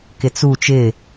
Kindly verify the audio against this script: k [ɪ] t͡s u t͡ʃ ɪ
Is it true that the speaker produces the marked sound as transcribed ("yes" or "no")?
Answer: yes